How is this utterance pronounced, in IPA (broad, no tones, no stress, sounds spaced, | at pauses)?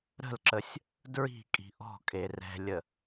ɾ ə̤ l ǁ ə sʲ | d ɹ i̤ kʼ i̤ ʔ ɔ̤ kʼ e r ɛ̤ lʲ ə